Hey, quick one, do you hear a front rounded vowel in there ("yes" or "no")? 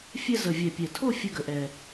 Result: no